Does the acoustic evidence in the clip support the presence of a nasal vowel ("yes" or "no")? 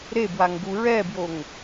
no